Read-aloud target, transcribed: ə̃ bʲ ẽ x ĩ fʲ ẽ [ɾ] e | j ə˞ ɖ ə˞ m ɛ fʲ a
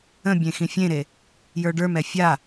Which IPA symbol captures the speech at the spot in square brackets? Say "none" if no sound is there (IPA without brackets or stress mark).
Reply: ɾ